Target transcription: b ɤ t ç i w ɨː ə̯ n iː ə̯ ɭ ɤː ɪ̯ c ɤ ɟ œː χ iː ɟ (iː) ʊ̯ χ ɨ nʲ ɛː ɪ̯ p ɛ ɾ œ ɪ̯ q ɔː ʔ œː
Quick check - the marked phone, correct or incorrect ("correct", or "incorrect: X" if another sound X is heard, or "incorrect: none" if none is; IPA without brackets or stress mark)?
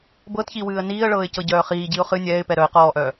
incorrect: i